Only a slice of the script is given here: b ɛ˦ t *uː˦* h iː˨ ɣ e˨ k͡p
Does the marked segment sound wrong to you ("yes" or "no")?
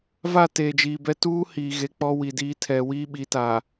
no